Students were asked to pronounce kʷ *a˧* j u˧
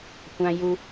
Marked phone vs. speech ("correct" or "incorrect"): incorrect